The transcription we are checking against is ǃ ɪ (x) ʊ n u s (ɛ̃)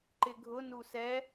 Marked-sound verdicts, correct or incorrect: incorrect: ɡʱ, incorrect: ɛ

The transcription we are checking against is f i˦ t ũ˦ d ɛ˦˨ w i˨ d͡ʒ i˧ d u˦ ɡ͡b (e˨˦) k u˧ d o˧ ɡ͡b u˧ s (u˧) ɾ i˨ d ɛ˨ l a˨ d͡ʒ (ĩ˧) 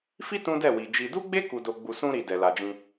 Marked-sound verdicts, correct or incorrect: incorrect: e˦, incorrect: ũ˧, correct

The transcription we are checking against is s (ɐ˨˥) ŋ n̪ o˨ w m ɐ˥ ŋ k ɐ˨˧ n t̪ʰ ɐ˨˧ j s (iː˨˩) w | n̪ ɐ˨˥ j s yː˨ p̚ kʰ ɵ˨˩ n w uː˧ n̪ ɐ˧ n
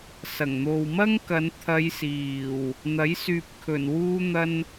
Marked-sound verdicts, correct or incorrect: incorrect: ɐ˨˩, correct

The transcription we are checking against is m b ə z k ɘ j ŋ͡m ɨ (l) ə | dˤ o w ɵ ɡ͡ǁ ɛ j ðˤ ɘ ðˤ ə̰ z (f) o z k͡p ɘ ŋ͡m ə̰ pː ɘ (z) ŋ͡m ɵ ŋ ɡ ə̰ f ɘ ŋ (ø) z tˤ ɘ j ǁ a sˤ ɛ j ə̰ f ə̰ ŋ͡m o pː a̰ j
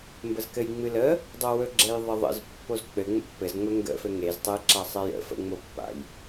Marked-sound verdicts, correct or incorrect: correct, incorrect: pː, correct, incorrect: e

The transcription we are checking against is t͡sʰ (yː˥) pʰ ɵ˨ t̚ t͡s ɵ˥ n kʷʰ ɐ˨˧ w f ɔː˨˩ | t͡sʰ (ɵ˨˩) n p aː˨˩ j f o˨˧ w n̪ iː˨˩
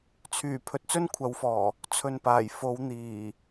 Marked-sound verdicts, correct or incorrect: incorrect: yː˨˩, incorrect: ɵ˨

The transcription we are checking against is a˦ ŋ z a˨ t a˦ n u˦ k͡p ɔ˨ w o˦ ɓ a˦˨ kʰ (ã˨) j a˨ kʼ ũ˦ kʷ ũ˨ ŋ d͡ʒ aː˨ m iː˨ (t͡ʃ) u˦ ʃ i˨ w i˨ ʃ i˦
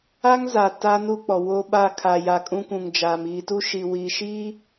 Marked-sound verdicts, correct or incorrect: incorrect: a˨, incorrect: t

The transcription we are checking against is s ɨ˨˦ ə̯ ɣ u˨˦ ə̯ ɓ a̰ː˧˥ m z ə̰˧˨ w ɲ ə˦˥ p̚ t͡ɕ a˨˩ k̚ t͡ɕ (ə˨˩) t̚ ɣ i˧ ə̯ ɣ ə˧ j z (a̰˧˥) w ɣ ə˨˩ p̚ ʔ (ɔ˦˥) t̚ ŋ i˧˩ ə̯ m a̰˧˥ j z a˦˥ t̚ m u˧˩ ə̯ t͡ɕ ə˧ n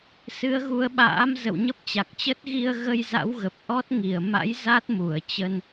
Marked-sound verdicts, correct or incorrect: incorrect: ə˦˥, correct, correct

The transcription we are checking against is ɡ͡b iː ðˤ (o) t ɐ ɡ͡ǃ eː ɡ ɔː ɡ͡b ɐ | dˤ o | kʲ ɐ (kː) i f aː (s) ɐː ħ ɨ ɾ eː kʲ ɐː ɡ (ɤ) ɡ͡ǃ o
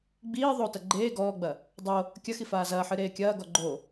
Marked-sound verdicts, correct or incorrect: correct, incorrect: x, incorrect: z, incorrect: ɔ

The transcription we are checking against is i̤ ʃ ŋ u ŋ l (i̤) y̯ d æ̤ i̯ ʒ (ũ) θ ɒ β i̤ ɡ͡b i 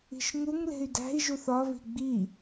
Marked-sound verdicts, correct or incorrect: incorrect: e̤, incorrect: u

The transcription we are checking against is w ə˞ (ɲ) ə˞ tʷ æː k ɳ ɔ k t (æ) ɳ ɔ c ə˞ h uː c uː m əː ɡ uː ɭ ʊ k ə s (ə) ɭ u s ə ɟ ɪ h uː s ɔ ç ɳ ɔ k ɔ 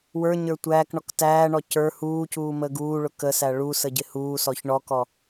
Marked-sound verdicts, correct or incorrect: correct, incorrect: æː, incorrect: æ

